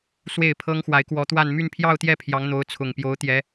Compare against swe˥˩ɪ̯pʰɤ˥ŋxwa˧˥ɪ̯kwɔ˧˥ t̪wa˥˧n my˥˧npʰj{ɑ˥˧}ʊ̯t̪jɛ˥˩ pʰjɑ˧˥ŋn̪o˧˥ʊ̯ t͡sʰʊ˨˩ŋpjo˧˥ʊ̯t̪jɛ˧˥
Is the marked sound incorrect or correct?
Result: correct